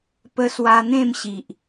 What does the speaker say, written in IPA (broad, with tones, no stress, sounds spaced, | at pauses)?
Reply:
p ə˧ s w a˧ n̪ ẽ˥˧ m ɕ i˨ ʔ